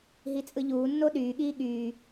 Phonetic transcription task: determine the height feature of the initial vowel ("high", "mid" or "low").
high